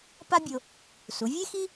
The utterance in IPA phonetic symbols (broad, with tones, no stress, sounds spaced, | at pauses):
p a˥ bʲ o˧ | s u˩˧ vʲ e˥ x i˥